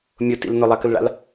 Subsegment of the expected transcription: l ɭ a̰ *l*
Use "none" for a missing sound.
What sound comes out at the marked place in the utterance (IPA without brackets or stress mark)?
l